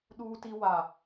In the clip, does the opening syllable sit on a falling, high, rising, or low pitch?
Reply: high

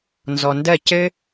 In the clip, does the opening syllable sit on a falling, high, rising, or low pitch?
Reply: low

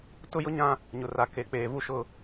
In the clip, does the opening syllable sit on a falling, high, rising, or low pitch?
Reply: high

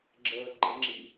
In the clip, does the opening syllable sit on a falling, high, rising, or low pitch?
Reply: low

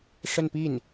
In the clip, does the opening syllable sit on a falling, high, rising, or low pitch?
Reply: falling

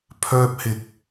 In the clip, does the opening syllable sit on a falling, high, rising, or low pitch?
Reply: high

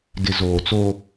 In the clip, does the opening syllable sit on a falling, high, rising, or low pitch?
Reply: low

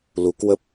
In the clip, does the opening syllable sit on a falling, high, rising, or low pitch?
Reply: rising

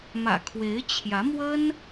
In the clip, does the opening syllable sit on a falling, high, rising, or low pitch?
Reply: low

